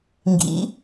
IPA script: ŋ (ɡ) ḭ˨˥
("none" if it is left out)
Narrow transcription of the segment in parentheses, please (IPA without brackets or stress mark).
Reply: ɡ